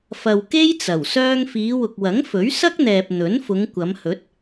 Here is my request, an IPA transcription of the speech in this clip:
fɐ˨wke˥jt͡sɐ˨˩w sœː˧ŋfiː˨˧wʊ˨k̚wɐ˨˥ŋ fɵ˨˥ɥsɐ˥k̚n̪ɛː˨p̚ n̪ɵ˨˥nfʊ˨˧ŋ kʷɐ˨˧mhɵ˨˥t̚

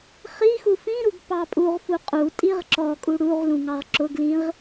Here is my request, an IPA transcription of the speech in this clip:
χixu fĩɾuɡ pɑpʼuʁfu qʼutʼiʁ ǁɔkʼu ɽuʁlũ ŋɑʁǁʊɡlĩʁ

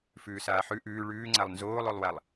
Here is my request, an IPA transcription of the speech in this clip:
fʉːsaːħʉ ʔʉː ɭʉːŋ͡ǀalˠ nzoːlˠolˠwalˠ

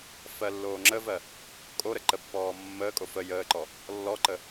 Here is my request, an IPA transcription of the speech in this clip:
fɜlːoːŋ͡ǁəvɜ | kʼoɾə ǃəpːɔː mːəːkʼo fə jəːǃɔ | lːɔǃə

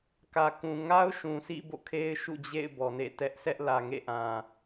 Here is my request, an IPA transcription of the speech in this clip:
kä˨kũ˨ŋa˦ʊ̯ ʃũ˨sʰḭ˦˨ bo̰˦˨kʰe˦ɪ̯ ʃṵ˦˨d͡ʑḛ˦˨ɪ̯ bɔ˨nḛ˦˨tɛ˦ʔ sɛ˦ʔlä˨ŋḛ˦˨ʔã˨

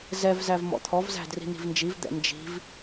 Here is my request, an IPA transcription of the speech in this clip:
zɛvzæv mɔ̰t̪ʰɔvzæ̤ dri̤n̪i̤vnd͡ʒiv d̪ɛ̰nd͡ʒi̤v

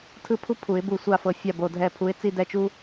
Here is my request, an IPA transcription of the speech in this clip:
tʰɯ˥˧pʰu˥ pʰu˨˩˦ɪ̯bu˧˩ sʷa˥˩fɤ˧˩ fʲa˥˩bo˧˩ dʱɛ˧˩pʰu˨˦ɪ̯ t͡si˥˧dɛ˥˩t͡ʃu˥

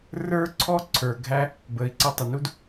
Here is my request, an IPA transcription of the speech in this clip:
rə˞˥ǀʰɔ˥ ǀʰə˞˩ɡʱæ˥ | bəː˩i̯ǀʌ˧˥tˤʊ˩nu˥d

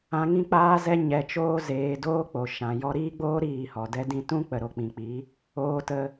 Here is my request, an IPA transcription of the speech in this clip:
ã˧ŋĩ˦k͡paː˦zɛ˦ ɲɛ˨t͡ʃoː˧zeː˨ doː˦k͡po˨ ʃã˨ jɔ˧ɾiː˦ɡ͡boː˦ ɾiː˦˨hɔ˨ dɛ˧dĩ˧tũ˦ k͡pə˨ɾo˨k͡pĩ˨k͡pi˨˦ | oː˦tə˦

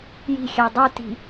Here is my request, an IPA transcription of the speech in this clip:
ji̤xʲæ dˤuti̤

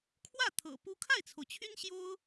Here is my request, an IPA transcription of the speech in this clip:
kʰwä˥˩ t̪ʰɤ̰˨˩pu˥ kʰa˥˩ɪ̯t͡sʰo˩ʊ̯t͡ɕʰy˥n ɕjo˥ʊ̯

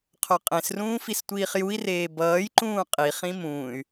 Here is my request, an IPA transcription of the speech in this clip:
qʰoqʼẽsrũː fistʷiːχjui̯reː bʌːjǃũː qʼiχĩ mũːy̯

